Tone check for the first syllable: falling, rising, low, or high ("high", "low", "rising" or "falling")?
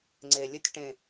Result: low